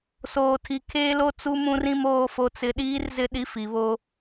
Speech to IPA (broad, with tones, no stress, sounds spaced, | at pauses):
s oː˨ tʰ i˨ kʰ eː˦ l o˦ t͡s u˦ m ũ˦ r ĩ˦ m oː˦ f o˦ t͡s ɪ˦ ɗ iː˦ r z ɪ˦ ɗ i˦ f i˨˦ β o˦